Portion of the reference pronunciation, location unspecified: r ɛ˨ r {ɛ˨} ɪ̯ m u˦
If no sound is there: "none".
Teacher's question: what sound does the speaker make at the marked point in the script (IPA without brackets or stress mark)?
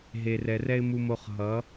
ɛ˦